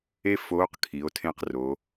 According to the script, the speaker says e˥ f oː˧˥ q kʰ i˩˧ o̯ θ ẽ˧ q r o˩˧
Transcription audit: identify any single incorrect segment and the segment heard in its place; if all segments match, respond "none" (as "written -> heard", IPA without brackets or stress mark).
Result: θ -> tʰ